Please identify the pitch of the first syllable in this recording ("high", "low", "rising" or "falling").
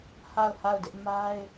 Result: falling